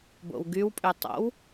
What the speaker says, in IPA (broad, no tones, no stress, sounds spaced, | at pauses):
b o̰ w ɡ y w pʼ y tˤ o̰ w